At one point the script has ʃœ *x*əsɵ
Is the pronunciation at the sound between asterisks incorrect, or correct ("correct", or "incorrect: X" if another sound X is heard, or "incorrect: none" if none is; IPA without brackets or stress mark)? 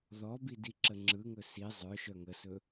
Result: incorrect: ŋ